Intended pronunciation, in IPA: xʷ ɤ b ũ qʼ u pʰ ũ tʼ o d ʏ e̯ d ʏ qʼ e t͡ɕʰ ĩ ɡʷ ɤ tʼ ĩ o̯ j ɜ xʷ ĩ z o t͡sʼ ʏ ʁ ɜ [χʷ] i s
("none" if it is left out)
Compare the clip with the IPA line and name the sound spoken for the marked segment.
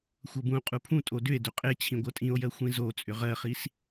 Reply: χ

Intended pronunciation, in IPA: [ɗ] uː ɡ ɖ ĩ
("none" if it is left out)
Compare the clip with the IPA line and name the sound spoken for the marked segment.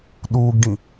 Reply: ɗ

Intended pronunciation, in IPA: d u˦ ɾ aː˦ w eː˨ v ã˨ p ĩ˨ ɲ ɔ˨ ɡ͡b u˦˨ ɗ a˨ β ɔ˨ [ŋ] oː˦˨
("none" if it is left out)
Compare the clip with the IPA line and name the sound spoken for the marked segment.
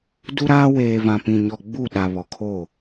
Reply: kʰ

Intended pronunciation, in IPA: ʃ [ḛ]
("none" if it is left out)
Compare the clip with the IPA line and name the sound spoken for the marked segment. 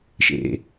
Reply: ḛ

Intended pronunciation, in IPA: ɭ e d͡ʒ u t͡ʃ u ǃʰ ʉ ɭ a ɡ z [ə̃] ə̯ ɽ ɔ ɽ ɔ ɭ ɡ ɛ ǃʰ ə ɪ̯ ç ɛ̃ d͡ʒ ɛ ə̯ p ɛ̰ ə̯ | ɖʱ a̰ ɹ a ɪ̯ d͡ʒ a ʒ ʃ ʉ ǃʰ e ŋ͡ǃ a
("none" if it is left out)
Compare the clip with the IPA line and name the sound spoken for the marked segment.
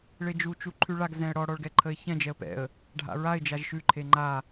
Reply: ɛ̃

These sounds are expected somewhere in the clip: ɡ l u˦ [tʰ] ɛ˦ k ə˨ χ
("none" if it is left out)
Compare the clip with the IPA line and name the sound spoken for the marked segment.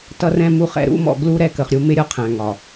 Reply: ɾ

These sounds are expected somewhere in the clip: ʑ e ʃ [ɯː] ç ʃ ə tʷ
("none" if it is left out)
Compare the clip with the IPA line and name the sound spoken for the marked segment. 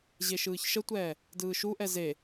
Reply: ɯː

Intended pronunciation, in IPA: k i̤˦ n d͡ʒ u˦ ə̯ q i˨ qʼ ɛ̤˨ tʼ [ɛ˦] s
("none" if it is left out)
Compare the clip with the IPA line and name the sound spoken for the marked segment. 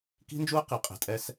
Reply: ɛ˦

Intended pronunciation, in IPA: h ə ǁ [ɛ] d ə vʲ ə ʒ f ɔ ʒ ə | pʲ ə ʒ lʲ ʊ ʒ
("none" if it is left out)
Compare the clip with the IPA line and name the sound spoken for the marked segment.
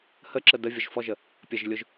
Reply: ə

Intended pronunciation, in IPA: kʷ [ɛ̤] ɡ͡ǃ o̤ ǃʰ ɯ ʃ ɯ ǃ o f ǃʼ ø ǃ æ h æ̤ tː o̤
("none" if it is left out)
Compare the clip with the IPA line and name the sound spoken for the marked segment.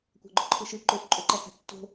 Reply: æ̤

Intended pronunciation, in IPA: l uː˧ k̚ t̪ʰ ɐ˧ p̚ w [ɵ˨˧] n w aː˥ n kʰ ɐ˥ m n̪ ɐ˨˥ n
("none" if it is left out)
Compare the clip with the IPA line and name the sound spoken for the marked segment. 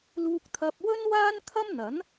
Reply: ɵ˥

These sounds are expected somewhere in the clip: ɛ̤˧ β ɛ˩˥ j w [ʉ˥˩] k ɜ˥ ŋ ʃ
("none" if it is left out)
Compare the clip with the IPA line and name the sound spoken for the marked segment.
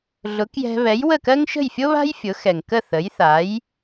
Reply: ə˥˩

